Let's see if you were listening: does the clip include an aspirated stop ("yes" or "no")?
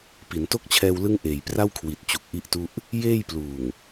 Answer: yes